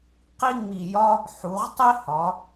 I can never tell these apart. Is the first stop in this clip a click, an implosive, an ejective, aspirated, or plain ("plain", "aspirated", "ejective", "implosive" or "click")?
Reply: plain